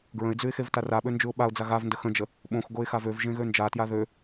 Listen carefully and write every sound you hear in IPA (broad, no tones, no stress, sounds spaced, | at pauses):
ɡ ɹ ə̃ ɪ̯ d͡z ʉ ɪ̯ x e v t a r a ɓ ø n d͡ʒ ʉ ʊ̯ ɓ a ʊ̯ d͡z a ɣ a v n d ə x ə̃ d͡ʒ ə | ɓ õ x ɡ o ɪ̯ x a v ø v ʒ ẽ ɣ ø n d͡ʒ a t j a ð ø